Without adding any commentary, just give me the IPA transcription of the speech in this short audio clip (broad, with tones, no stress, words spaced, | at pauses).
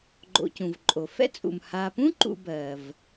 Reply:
ɡ͡ǃo̰˨cũ˩vǃʼo˩ fɛ̰˥t͡sʼṵ˩m ha˨pũ˥ǃṵ˨ bɜ˩v